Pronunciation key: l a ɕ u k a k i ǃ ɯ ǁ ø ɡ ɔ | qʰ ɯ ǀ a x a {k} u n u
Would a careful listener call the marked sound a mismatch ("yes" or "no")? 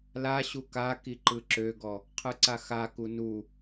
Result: no